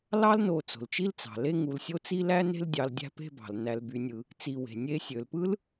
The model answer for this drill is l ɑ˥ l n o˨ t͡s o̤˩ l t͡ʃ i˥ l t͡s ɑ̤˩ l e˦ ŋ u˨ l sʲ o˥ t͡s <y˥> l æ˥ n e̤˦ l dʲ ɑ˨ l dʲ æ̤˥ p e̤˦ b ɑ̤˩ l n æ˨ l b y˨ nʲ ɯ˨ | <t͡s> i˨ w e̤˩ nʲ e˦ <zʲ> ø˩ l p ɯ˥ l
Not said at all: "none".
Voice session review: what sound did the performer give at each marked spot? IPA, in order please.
i˥, t͡s, sʲ

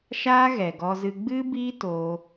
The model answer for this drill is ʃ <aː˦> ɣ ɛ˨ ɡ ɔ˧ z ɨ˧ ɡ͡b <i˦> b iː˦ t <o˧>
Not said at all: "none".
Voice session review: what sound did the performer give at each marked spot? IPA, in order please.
aː˦, ɨ˦, o˧

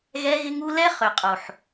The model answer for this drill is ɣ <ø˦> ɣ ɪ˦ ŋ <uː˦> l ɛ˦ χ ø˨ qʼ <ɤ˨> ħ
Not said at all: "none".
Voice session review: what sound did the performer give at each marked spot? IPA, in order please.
ɛ˦, u˦, o˨

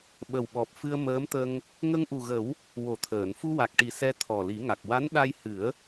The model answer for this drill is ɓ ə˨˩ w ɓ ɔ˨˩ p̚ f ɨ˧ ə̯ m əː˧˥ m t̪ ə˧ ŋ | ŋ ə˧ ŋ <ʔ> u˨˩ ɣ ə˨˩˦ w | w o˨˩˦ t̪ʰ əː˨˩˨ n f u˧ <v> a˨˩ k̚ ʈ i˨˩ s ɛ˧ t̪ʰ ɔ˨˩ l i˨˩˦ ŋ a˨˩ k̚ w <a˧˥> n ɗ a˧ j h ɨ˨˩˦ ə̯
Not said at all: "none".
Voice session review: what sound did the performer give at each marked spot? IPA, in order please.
ʔ, w, a˧˥

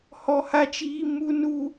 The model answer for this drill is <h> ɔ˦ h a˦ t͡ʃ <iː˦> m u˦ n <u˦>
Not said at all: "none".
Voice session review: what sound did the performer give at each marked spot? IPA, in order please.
h, iː˦, u˦

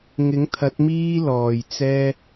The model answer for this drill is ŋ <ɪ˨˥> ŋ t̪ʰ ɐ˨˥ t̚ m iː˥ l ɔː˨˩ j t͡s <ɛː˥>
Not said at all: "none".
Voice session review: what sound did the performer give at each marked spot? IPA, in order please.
ɪ˨˥, ɛː˥

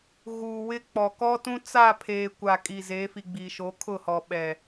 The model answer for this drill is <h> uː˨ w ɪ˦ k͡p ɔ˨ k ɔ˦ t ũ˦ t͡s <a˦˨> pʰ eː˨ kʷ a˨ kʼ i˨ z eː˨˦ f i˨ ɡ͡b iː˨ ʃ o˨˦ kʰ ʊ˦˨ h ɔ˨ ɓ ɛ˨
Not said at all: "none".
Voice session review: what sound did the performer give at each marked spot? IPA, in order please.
ɣ, a˦˨

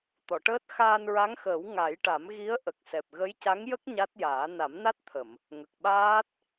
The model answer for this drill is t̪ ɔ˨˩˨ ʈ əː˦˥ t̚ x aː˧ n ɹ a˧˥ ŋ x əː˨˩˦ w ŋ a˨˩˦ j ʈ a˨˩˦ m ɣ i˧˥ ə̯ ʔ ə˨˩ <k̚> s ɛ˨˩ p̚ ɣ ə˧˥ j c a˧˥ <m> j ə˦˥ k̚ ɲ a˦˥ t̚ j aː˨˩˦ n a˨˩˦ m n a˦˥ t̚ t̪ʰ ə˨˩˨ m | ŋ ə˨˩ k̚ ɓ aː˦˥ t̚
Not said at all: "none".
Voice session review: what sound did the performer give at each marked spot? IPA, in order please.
k̚, ŋ

